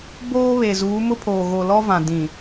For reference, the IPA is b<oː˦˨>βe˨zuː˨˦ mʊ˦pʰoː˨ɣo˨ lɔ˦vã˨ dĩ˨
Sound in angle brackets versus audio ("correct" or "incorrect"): incorrect